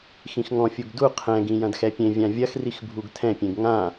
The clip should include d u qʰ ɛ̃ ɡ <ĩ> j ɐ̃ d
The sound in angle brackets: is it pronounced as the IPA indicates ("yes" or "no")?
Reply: yes